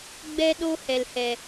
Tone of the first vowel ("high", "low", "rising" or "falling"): high